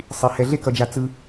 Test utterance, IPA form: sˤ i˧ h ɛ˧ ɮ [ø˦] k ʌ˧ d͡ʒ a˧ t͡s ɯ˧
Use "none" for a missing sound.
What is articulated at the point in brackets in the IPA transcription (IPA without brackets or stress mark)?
e˦